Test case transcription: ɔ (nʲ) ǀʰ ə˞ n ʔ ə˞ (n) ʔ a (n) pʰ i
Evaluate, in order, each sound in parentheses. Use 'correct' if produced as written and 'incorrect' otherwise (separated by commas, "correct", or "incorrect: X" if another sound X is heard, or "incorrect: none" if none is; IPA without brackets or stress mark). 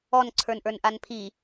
incorrect: n, correct, correct